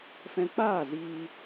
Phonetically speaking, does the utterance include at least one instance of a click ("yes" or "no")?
no